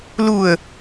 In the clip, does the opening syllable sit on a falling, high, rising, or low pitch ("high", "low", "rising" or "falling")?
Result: low